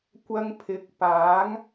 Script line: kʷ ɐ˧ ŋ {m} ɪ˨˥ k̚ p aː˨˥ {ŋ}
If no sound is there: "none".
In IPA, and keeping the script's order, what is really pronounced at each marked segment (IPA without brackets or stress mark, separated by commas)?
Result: pʰ, ŋ